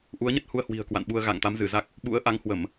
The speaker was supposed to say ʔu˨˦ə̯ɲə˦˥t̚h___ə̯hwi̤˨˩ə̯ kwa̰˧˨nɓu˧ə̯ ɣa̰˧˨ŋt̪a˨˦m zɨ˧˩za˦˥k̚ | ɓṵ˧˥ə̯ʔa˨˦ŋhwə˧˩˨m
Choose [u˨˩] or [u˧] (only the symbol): u˧